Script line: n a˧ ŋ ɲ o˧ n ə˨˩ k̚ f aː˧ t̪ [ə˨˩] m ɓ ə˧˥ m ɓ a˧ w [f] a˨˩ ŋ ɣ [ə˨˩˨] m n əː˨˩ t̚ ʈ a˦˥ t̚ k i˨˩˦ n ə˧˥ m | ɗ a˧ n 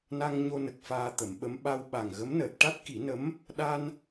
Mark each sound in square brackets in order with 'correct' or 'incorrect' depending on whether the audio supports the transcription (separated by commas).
incorrect, incorrect, incorrect